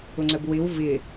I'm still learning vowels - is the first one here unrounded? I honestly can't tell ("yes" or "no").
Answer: no